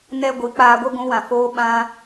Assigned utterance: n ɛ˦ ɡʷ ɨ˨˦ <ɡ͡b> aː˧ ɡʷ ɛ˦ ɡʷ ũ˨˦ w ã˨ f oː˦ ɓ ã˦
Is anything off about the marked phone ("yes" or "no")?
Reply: yes